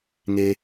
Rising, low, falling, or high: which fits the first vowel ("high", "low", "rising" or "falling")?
high